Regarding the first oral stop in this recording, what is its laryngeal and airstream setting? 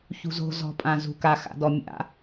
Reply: ejective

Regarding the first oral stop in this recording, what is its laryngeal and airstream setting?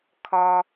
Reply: aspirated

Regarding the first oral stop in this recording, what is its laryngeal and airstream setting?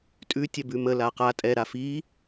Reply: ejective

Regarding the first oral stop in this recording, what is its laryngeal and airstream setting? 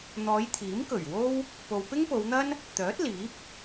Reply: aspirated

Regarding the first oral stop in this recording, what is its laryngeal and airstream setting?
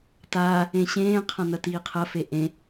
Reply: plain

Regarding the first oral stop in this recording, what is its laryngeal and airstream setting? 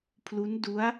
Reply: aspirated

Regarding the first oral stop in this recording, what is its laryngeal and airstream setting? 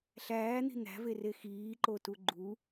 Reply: click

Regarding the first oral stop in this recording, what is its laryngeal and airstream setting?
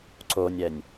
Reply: click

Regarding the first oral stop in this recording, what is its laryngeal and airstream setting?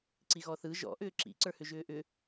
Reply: click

